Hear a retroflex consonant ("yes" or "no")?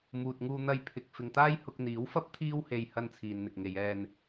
no